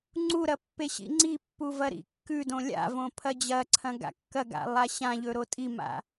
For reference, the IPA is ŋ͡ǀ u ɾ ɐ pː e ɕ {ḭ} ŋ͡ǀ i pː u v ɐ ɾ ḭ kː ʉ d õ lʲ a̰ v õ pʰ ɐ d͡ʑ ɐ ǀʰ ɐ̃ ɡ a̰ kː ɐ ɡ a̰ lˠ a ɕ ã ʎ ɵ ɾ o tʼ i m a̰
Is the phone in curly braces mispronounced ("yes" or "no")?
no